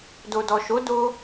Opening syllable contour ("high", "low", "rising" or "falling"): low